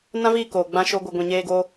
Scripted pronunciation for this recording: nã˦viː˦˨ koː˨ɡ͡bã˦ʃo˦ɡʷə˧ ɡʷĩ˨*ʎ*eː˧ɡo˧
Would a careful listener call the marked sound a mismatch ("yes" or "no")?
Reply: yes